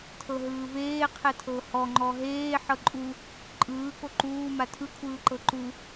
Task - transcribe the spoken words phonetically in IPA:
tʰ ɤ ɦ ɯː v eː qʰ ɛ tʰ ɤ h ɔ ŋ͡ǃ ɔ ɦ eː ħ ɤ ǃʼ u | ǃʼ ɯː k o ǃ uː m a tʰ ɯ kʷʰ ɯː ǃ ɤ ǃ u

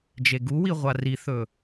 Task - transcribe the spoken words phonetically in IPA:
d͡ʒ e ɡ u w i ʁʷ a r i θ ɵ

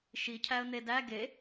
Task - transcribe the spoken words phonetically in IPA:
ʃ i cʰ æ ə̯ n̪ e d æ ɡ e

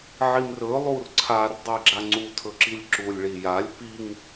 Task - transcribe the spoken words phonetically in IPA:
ʕ i m r ɵ lˠ u r ǀʰ a r dˤ i ɡ͡ǁ a ŋ͡ǀ u tʰ ɵ ǁ i lʲ ǁ u lʲ ɭ i j a lʲ p i ŋ

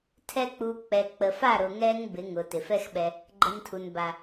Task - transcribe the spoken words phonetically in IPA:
tʰ ɛ˦ k͡p u˧ k͡p ɛ˨ k͡p ə˨ f a˦˨ ɾ ʊ˨ ŋ ɛ˧ ŋ b ɪ˨˦ ŋ ʊ˨ t ɪ˨ f ɛ˦ x ɓ ɛ˧ | ɡ͡ǃ ə˧ n tʰ u˨ n b a˨

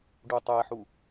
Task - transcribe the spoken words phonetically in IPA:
ɖ u tˤ ɛ ħ u

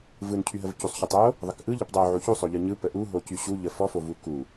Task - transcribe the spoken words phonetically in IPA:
v ɯ n cʰ y ɦ ə v c u sˤ ç u tˤ o | ðˤ ə k ʔ ɯ ʎ ə p dˤ o ʕ u ç u sˤ o ʎ ɯ ɲ ɯ p ə ʔ u ɦ o c y ɕ u ʎ ə f ɔ f o v u k u

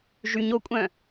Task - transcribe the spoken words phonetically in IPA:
ʒ y ɲ o kʷʼ œ̃

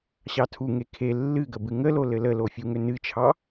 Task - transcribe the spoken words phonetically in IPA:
ɕ ɑ tʰ u ŋ e kʰ e lː ɨ ɡ ə b ɨ ŋ ə l o l ɘ l ə l o fʲ u ŋ ʏ n ɨ t͡ʃʰ ɑ

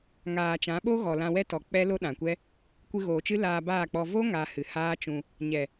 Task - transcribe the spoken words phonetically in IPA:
ŋ aː˨ t͡ʃ ã˨˦ ɓ o˦ ɣ ɔ˨ l ã˧ w ɛ˦ t ɔ˨ k͡p ɛ˦ l o˦ ɗ ã˨ kʷ ɛ˦ | kʷ ɨ˧ ɣ oː˨ t͡ʃ ɨ˦ l aː˧ b aː˦˨ k͡p ɔ˧ v o˦ ŋ a˧ h ɨ˨ h aː˦ t͡ʃ ũ˧ | ɲ ɛ˨

